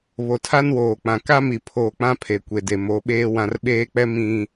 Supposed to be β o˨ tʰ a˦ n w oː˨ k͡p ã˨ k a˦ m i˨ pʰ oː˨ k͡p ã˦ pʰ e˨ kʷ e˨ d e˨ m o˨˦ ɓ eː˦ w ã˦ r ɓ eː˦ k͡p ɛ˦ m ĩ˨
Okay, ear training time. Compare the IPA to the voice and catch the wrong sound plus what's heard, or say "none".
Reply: none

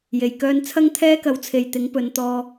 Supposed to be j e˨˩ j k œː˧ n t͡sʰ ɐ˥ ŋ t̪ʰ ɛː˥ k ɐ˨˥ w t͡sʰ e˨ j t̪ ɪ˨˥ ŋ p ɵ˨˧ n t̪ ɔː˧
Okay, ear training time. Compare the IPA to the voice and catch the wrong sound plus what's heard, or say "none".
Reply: none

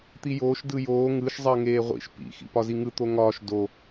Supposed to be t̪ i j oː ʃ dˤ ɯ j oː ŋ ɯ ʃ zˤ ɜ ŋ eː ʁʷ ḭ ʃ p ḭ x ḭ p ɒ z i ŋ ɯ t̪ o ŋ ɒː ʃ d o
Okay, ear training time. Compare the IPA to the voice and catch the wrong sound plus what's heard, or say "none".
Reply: dˤ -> d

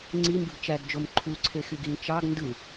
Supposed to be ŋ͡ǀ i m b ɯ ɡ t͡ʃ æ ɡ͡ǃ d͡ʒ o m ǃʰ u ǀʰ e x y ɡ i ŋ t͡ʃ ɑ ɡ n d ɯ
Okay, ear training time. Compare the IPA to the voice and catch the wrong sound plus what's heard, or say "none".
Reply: ɡ͡ǃ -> ɡ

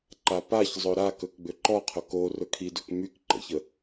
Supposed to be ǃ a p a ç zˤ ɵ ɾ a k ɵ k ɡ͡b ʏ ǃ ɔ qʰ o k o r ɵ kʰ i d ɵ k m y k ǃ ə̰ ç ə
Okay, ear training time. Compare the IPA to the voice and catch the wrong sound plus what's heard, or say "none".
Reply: none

